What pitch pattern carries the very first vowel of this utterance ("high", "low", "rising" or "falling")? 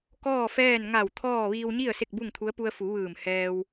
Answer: falling